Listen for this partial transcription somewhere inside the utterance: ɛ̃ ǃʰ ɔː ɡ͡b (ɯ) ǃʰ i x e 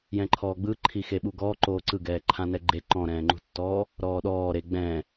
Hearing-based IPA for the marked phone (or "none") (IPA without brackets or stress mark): ɯ